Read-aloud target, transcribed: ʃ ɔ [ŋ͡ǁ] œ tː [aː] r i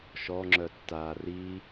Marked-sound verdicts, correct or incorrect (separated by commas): correct, correct